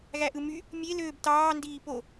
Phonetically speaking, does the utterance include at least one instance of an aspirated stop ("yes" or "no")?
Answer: no